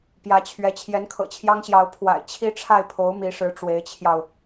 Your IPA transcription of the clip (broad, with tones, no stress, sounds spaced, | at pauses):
p j ä˧˥ t͡ɕʰ ɥ ɛ˧˥ t͡ɕʰ j ɛ˧˥ n kʰ ɤ̰˨˩ t͡ɕʰ j ɑ˥ ŋ ɕ j ɑ˧˥ ʊ̯ pʰ w a̰˨˩ ɪ̯ t͡ɕʰ i˥ ʈ͡ʂʰ a˥˩ ɪ̯ pʰ o˧˥ ʊ̯ m i˧˥ ʂ ɻ̩˧˥ ʈ͡ʂ w e˧˥ ɪ̯ t͡ɕʰ j ɑ˧ ʊ̯